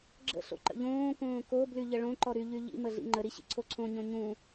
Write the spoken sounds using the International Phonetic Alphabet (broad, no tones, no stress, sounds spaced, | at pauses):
ɡ͡ǁ ə̰ ɬ o̰ ǃ ə̰ ʎ õː k õː k o b l y ʎ ə ɭ õ ǃ ɔ ɾ y ʎ y ʎ ḭ m ə ɮ ḭ ŋ͡ǃ ə ɾ i ɕ ḭ ǀʰ o ǀʰ õ ɲ õ ɲ ũ